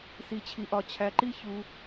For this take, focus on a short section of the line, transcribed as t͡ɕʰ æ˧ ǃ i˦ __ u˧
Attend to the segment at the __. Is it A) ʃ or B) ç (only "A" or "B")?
B